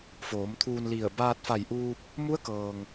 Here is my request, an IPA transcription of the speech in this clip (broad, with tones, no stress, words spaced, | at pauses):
foː˩˧mt̪ʰuː˧nli˧˩ə̯ baː˧t̚fa˧˩jʔuː˧p̚ | mu˧˥ə̯kɤː˩ŋ